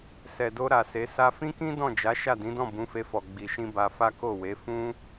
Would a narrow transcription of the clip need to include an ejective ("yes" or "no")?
no